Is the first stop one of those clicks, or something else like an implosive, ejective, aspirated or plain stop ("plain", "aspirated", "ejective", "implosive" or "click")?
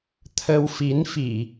aspirated